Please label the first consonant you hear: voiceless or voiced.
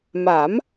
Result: voiced